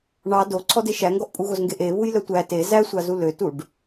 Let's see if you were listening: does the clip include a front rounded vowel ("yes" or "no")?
yes